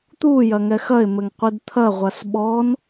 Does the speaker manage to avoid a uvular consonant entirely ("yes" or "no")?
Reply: no